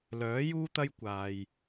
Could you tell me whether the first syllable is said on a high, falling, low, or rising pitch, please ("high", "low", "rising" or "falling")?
rising